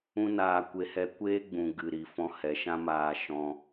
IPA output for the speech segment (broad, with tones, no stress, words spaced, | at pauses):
ũ˦naː˧kʷe˧ hɛ˧kʷeː˦ɡ͡bũ˨ ɡɨ˨ ɾi˨ fɔ̃˧hɛ˨ʃã˦ maː˧ʃɔ̃˧